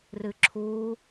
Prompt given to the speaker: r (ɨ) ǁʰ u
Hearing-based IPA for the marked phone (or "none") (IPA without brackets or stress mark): ɨ